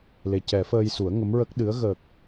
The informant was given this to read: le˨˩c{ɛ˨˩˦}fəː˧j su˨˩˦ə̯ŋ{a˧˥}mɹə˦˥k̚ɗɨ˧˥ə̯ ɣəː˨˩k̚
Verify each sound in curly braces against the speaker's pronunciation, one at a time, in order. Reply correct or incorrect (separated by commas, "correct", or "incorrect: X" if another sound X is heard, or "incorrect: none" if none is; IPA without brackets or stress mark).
correct, incorrect: ə˧˥